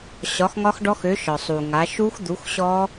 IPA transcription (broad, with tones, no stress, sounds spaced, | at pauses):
ɕ ɒ˨˥ x ŋ ɒ˦˥ x ɖ ɔ˦˥ x ø˨˥ ʃ ɒ˩ sˤ u˩ ŋ a˨˥ ʃ u˦˥ x d̪ u˨˥ x ɕ ɔ˦˥